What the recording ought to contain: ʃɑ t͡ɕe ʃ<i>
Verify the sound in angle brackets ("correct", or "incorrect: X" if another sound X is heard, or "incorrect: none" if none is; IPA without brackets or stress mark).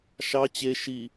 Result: correct